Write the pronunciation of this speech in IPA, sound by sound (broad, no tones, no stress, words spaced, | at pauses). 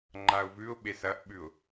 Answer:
ŋ͡ǃaʊ̯vʉʊ̯ ɓesɐʔɓʉʊ̯